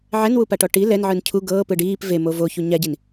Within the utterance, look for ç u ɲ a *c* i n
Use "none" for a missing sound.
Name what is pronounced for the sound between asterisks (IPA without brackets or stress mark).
ɟ